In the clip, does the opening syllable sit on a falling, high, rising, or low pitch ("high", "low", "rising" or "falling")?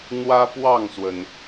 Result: high